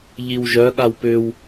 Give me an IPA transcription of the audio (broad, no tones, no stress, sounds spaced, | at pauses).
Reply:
ʎ i w ʒ œ ɠ a w p ʏ w